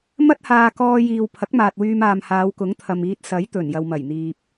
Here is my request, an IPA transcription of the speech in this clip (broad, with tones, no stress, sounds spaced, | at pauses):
m ɐ˥ t̚ h aː˧ k ɔː˧ j iː˨ w pʰ ɐ˨˥ k̚ m aː˨ t̚ w yː˧ m aː˨ m h aː˨˧ w k ʊ˨˥ ŋ t̪ʰ ɐ˨ m iː˧ t̚ s ɐ˨˥ j t̪ ɵ˨˩ n j ɐ˨ w m ɐ˨˩ j n̪ iː˨ p̚